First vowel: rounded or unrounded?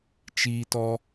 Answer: unrounded